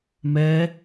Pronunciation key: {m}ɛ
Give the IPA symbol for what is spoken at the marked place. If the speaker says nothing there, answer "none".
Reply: m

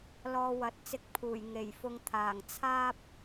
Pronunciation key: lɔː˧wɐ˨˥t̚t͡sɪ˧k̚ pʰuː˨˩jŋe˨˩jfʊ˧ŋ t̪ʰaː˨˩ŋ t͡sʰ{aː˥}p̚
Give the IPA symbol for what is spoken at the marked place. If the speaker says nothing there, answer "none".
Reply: aː˥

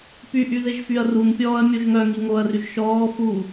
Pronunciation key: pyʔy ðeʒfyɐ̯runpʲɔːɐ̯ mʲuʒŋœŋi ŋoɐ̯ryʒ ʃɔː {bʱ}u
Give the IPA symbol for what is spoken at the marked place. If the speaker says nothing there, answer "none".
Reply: f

